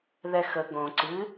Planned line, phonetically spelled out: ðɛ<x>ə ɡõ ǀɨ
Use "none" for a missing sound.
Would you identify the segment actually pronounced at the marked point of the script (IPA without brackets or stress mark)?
x